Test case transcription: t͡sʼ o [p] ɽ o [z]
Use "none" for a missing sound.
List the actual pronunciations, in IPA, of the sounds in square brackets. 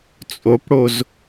p, z

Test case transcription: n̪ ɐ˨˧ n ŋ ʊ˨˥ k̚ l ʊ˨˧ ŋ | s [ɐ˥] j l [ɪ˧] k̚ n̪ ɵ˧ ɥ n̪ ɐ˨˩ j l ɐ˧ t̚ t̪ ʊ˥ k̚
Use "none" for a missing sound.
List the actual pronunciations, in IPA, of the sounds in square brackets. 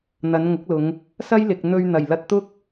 ɐ˥, ɪ˨

